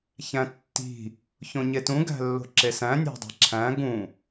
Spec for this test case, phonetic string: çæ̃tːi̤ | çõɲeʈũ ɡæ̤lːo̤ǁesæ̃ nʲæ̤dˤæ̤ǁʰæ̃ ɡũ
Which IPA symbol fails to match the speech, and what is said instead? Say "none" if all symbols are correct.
ʈ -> t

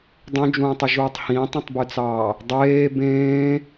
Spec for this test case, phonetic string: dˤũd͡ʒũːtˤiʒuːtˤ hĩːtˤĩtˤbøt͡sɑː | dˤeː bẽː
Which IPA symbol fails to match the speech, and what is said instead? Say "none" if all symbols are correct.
none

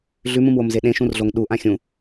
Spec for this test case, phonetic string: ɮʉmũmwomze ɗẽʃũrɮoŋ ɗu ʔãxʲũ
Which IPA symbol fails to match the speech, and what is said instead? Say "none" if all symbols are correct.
none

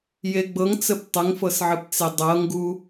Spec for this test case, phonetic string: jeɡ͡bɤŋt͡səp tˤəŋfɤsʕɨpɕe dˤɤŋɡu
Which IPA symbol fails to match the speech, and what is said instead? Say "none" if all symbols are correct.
ɕ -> t͡s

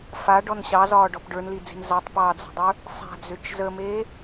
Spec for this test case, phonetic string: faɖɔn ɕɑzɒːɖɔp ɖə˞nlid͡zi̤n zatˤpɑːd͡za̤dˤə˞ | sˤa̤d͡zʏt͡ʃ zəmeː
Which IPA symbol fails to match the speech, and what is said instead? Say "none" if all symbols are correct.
none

